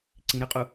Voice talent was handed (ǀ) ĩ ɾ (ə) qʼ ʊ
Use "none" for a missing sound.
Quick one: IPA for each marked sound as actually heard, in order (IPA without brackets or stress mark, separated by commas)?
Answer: ǀ, ə